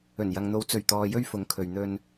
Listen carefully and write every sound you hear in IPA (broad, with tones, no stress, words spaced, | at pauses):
ɵ˨˩njɐ˨ŋn̪o˨˧w t͡sɵ˨˩ɥ t̪ɔː˨jɵ˧ɥ fʊ˨˥ŋkʰɵ˨ɥ n̪ɵ˧n